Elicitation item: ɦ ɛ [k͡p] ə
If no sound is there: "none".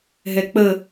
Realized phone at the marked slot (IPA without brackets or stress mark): k͡p